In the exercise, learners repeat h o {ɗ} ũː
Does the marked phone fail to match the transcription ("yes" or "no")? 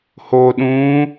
no